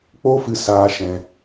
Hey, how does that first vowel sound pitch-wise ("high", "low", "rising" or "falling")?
high